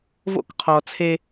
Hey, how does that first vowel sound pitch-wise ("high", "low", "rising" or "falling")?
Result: high